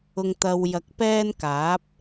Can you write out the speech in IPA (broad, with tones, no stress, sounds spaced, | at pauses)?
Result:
ʊ˧ ŋ t̪ ɐ˧ w j ɐ˨˥ k̚ p ɛː˥ n k aː˨˥ p̚